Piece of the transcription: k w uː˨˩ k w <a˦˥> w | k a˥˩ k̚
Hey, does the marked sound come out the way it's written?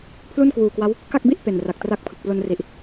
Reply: yes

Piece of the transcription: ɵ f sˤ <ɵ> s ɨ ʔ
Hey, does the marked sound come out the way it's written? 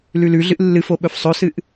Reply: yes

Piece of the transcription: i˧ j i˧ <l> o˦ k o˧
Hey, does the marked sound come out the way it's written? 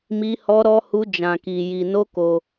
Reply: no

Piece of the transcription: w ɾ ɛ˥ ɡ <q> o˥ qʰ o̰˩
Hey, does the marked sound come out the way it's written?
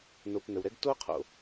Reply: no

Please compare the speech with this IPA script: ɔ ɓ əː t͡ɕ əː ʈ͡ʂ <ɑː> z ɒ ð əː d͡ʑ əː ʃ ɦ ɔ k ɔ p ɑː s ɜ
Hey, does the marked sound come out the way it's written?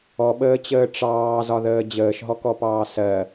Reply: yes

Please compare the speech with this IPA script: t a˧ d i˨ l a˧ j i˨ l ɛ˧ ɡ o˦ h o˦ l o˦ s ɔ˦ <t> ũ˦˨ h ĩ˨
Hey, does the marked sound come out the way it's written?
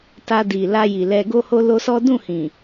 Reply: no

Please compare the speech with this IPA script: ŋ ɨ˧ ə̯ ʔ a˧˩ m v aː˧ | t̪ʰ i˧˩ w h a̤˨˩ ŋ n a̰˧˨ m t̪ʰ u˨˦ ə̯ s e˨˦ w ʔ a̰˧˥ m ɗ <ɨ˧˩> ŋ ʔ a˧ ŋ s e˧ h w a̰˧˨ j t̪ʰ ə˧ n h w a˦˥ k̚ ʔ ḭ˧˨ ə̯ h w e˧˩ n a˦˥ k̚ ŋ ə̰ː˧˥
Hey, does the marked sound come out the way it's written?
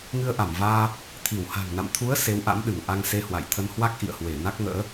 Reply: yes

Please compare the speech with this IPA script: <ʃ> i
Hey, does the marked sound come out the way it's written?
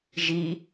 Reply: no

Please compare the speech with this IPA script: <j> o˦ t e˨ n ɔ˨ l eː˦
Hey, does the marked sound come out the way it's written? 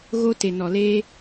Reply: no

